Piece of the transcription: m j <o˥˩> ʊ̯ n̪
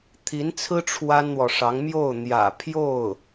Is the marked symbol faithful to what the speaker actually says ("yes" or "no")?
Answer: yes